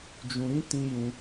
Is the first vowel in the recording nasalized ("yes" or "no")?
yes